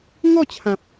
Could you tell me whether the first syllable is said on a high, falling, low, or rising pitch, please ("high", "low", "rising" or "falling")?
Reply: falling